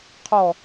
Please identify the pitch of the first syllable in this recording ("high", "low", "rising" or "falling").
low